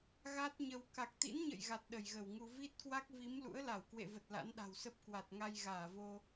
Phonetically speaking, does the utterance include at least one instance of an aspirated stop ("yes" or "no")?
no